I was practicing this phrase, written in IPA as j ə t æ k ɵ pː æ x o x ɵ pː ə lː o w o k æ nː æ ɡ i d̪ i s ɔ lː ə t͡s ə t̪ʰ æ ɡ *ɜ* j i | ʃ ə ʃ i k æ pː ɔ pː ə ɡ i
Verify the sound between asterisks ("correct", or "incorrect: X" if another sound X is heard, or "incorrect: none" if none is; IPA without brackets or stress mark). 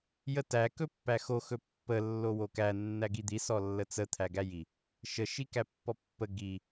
incorrect: æ